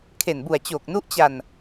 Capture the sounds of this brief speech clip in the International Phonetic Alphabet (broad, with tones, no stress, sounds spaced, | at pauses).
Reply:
kʰ e˨˩ n b u˨˩ a̯ t͡ɕ oː˨˩ k̚ n u˦˥ ʔ t͡ɕ a˨˩ n